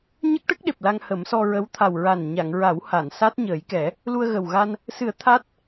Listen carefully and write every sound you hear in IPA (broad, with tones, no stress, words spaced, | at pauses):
ɲə˦˥k̚ʈə˦˥k̚ ɗe˨˩p̚la˧ŋhə˨˩˦msɔ˧ ɹə˧˥wt̪ʰa˨˩w ɹa˨˩n ɲa˨˩˨ŋɹa˨˩˦w ha˨˩˨nsa˦˥t̚ɲəː˨˩˦jkɛ˨˩˦ | lu˧ə̯ɣə˨˩wɣa˧n | sɨ˨˩˦ə̯ t̪ʰa˦˥t̚